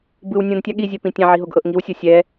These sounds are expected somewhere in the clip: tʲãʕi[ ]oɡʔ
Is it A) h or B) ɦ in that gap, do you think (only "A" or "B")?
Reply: B